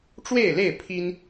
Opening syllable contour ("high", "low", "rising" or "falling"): falling